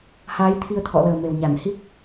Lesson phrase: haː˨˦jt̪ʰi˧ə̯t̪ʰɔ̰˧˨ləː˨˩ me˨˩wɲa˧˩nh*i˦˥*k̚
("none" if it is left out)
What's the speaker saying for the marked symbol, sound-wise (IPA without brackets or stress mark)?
i˦˥